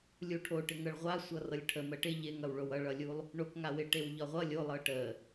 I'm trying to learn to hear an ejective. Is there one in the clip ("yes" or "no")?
no